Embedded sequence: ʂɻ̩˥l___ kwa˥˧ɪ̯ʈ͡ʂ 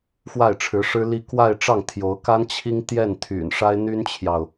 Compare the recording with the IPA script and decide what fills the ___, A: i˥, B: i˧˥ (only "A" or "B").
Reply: A